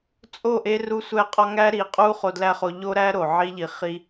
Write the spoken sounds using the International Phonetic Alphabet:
t͡sʼ o˦˨ ʔ e˦ r u˦ sʷ æ˦˨ qʼ ɒ˦ ŋ æ˦ ɾ i˨˦ qʼ u˦ χ o˧ d l æ˦ χ o˧ ʎ o˦ ɾ æ˦ ɾ o˨ ʕ i˦ ʎ i˧ χ i˦

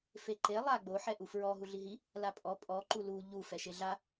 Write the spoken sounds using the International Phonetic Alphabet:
f e ǃ e lˠ a ɡ͡b o ħ ɛ ʔ u f ɹ ɔ ɦ u ɮ i ɦ i | l a pʼ ɔ pʼ ɔ ǃ u l u ʎ u f ɛ ʃ e ɮ a

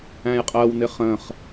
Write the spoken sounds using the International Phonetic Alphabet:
æ̃ j qʼ ɜ w n ɪ χ ə̃ χ

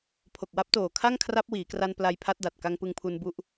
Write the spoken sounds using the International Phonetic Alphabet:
pʰ o˨˩ k̚ w a˦˥ p̚ t oː˨˩ kʰ a˥˩ ŋ kʰ r a˦˥ p̚ w iː˩˦ k r a˧ n p l a˧ j pʰ a˦˥ t̚ d a˨˩ t̚ k a˧ ŋ p ɯ˧ ŋ pʰ u˧ n b u˥˩ ʔ

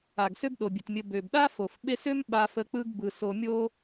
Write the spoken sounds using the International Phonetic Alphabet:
a˩ ɡ s ø˦ b ɗ o˩ bʲ ɘ˩ t mʲ ɘ˨ b ø˩ b ɗ a˥ f o˩ f ɓ e˦ s ø˥ m ɓ a˦ f ə˦ k͡p ɯ˥ ɡ b ɯ˩ s o˨ mʲ o˦

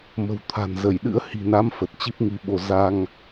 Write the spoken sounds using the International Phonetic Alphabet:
m ə̤˨˩ w t̪ʰ a̤˨˩ n z ə˧˩ j ɗ ɨ̰˧˥ ə̯ h i̤˨˩ n a˨˦ m f ə˨˩ t̚ t͡ɕ i˦˥ p̚ ŋ i˧ ɓ o˧ z a˧ ŋ

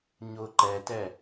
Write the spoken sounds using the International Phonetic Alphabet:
ɲ ʊ ǃ ɛ t ɛ

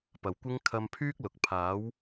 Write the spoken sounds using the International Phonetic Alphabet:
p ɐ˨ w kʷ ɪ˥ ŋ kʰ ɐ˧ m pʰ yː˥ k̚ l ʊ˨ k̚ pʰ aː˨˥ w

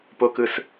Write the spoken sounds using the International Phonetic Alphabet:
p o k ɯ s

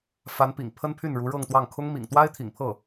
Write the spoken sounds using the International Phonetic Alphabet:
f a˧˥ n p ḭ˨˩ ŋ pʰ ə˥ n pʰ y˥˩ n ɻ u˧˥ ɻ ɤ˥˧ ŋ t̪ w ɑ˥˩ ŋ kʰ ʊ˥ ŋ m ḭ˨˩ ŋ t̪ w a˥ ɪ̯ t̪ʰ ḭ˨˩ ŋ pʰ ɤ˥˩

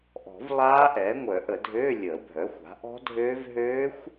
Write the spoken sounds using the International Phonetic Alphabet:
ʔ ɔ̤˨˩˦ v lˠ aː˦˥ ʔ ɛ˩˥ ŋʷ œ˨˩˦ ʔ ə˨˩˦ dʱ øː˧˥˧ lʲ əː˨˩˦ bʱ œ˩˥ xʷ a̤˩˥ ʔ ɔ̤˦˥ dʱ øː˦˥ v ɦ øː˦˥ xʷ

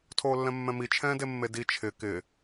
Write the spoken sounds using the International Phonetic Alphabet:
tʰ oː lː ɛ̃ mː ɛ̃ m i t͡ʃʰ ɛ̃ː d e mː e d i t͡ʃʰ ɪ k ɪ

